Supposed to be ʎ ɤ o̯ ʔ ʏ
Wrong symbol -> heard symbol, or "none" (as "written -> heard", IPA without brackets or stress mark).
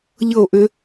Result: none